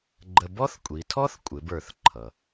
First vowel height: mid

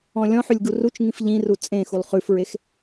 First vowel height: mid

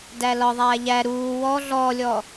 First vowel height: low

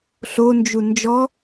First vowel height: mid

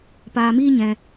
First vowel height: low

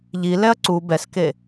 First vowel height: high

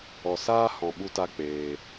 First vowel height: mid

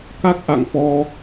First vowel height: low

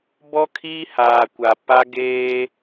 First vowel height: mid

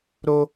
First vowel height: mid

